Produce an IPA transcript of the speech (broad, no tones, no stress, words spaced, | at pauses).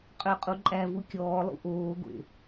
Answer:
qʼøqʼuǃʼævu kʲɔːlˠṵ ʔoːɡʷḛ